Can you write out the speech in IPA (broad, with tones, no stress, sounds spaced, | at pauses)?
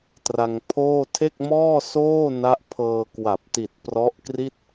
t r a˧ ŋ pʰ oː˥˩ tʰ e˥˩ k̚ m ɔː˥˩ s oː˥˩ n a˦˥ ʔ pʰ ɤː˧ k w a˨˩ p̚ t i˨˩ t̚ p r ɔ˦˥ ʔ k r i˥˩ t̚